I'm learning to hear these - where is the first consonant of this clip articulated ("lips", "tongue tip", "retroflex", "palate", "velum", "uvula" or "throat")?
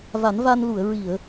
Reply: lips